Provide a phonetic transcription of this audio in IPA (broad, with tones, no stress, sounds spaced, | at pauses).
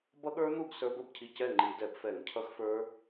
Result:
b ʌ˦˥ ɠ ə˞˦˥ n̪ u˥˨ ɡ s ə˞˦˥ b ə˥˨ b cʰ i˥˨ c ɛ˥˨ ŋ͡ǃ i˧˩˧ d ɛ˧˩˧ b f ɛ˧˩˧ ŋ cʰ ʌ˦˥ x f ə˞˦˥